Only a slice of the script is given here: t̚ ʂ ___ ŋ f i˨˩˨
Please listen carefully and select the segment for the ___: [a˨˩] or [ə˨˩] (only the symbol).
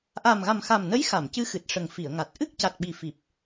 ə˨˩